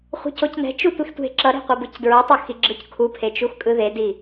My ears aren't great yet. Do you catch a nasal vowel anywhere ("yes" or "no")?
no